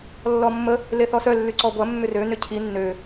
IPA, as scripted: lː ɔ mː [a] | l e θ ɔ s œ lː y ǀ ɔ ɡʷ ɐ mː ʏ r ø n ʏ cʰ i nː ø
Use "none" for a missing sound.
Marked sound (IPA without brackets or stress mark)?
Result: ə